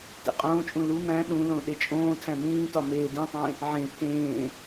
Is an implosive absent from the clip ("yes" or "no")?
no